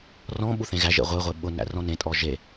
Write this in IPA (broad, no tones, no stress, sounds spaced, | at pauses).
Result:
r ɔ̃ ɓ u θ ẽ ɣ æ ʒ ḛ ʁʷ e ʁʷ e ɓ ʊ n æ̰ r ɔ̃ n ẽ tʼ ɔ ʒ e